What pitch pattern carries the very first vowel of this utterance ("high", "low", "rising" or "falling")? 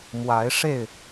rising